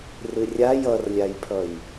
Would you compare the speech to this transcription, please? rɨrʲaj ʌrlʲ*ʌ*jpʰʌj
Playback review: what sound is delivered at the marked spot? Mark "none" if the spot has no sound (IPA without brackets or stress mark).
a